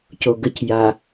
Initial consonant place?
palatal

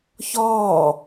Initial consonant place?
palatal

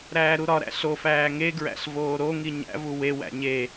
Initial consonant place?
alveolar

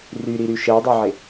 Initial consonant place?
alveolar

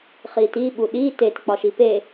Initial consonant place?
uvular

